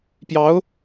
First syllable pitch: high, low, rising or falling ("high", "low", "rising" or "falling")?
rising